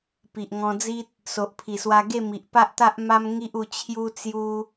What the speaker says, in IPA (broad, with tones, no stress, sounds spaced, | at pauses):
p i˨ ʔ ŋ ɔ̃˧ d͡z i˦ t̚ | s o˨ ʔ pʰ i˨˩ s w a˧ ɡ e˥˧ m i˨ ʔ p a˦ ʔ t̪ a˦ ʔ m a˦ m ŋ i˦ ʔ u˧ t͡ɕʰ j u˦ t͡s j u˦